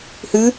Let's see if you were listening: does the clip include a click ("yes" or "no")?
no